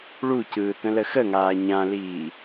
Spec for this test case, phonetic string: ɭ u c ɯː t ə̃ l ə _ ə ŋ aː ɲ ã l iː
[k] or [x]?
x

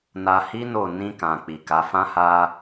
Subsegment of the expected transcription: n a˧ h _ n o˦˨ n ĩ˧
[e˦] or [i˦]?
i˦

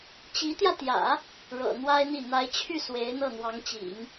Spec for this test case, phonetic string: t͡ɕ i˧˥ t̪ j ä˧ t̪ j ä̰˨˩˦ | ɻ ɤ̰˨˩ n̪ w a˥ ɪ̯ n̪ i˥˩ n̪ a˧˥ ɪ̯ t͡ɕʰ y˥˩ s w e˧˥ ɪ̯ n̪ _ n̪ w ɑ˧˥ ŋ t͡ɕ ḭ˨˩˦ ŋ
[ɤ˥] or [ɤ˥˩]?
ɤ˥˩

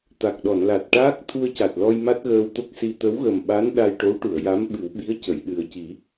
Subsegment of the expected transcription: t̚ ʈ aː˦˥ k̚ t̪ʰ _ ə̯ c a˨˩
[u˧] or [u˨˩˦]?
u˧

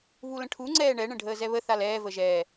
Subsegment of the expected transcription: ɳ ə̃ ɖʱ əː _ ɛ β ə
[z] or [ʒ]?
z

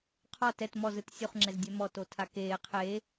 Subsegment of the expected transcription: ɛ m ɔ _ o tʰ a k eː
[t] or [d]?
t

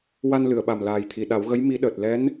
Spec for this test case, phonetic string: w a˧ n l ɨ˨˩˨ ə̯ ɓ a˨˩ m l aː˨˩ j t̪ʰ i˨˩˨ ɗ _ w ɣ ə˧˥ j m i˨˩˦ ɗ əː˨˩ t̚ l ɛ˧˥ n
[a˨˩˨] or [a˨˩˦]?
a˨˩˦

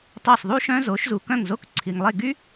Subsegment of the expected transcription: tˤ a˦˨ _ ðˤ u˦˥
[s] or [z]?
s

